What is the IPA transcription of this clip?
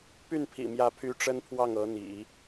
p y˥˩ n pʰ ḭ˨˩ m j ä˧˥ pʰ y˧˥ ʈ͡ʂ ə˥ n pʰ w ɑ˥˩ ŋ ɤ˧˥ n̪ ḭ˨˩˦

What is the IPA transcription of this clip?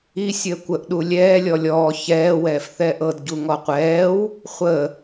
i sʲ əː kʷ ə ʔ ɗ u lʲ ɛː lʲ ɔ lʲ ɔː ç ɛː w ɛː f θ ɛː ʔ ɤ d ɟ u ŋ ɔ qʷ ɛː w | χʷ ə

